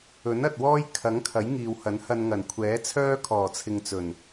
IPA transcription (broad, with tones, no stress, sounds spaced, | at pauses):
ɵ˨˥ n ɐ˨ t̚ w ɔː˥ j kʰ ɐ˨˥ ŋ kʰ ɐ˨˥ j ŋ iː˨ w h ɐ˨˥ n h ɐ˧ n ŋ ɐ˨˩ n kʷʰ ɛː˨˥ t͡sʰ œː˥ kʰ ɔː˨˩ t͡sʰ ɪ˨ ŋ t͡s ɵ˨˩ n